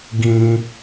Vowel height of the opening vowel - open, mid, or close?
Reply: close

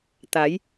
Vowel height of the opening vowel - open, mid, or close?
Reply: open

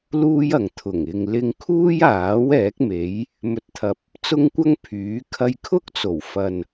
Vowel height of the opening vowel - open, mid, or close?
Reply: close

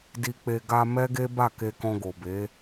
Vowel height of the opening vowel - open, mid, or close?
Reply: close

